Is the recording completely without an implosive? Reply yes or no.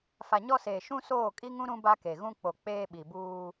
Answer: no